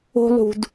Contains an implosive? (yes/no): no